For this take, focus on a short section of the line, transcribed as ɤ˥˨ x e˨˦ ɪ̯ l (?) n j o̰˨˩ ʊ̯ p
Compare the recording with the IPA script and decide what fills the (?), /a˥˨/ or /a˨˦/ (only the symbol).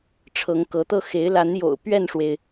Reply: a˨˦